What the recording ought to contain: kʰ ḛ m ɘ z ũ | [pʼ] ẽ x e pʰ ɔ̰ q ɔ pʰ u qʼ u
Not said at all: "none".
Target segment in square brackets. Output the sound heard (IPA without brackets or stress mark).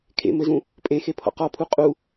pʼ